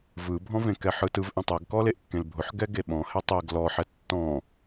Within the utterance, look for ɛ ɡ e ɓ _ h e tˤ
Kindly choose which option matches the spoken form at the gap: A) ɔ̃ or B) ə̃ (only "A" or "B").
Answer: A